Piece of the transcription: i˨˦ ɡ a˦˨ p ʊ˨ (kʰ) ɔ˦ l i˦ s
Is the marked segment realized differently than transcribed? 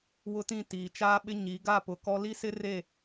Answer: yes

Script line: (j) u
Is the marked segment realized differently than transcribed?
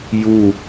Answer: no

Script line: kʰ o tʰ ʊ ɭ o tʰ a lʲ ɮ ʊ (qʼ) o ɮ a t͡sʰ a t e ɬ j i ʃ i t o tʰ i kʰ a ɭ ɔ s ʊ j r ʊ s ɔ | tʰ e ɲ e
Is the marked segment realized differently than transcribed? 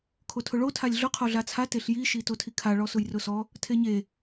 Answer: yes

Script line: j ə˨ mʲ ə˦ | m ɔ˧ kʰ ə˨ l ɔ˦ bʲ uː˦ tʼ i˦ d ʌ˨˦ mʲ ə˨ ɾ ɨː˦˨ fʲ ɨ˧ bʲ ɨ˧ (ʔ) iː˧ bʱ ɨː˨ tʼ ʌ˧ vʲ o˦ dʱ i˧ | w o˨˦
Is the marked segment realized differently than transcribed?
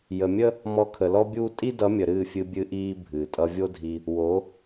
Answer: no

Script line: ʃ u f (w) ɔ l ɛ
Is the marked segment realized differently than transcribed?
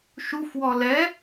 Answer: no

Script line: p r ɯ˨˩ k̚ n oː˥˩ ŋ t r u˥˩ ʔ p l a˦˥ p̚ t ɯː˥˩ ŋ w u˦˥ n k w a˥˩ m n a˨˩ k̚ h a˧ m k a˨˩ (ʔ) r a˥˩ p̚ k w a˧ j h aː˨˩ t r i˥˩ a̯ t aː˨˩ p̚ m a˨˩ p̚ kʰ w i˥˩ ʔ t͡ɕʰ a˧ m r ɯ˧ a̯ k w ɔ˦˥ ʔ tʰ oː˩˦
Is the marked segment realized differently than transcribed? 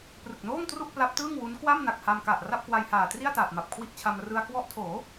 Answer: no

